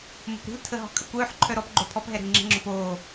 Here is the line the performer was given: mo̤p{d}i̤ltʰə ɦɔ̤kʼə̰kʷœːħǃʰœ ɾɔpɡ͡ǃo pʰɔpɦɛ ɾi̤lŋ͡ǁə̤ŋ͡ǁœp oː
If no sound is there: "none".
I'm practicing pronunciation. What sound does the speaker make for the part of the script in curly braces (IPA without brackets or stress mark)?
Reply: ɾ